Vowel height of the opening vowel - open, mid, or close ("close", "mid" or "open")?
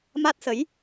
open